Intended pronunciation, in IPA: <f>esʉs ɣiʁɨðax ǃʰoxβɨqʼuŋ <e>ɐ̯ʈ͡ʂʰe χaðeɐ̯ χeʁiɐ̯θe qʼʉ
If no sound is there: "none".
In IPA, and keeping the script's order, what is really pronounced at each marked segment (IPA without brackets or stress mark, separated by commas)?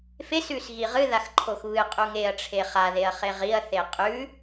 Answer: f, e